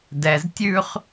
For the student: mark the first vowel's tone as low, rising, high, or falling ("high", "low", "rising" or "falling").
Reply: low